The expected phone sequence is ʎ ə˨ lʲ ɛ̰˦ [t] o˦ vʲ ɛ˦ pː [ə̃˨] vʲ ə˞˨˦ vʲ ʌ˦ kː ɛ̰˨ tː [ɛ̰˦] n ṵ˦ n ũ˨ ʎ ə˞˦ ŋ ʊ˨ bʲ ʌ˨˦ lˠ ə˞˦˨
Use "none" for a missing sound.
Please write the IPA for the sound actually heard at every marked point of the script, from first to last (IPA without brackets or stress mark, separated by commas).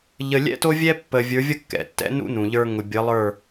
t, ə˨, ɛ̰˦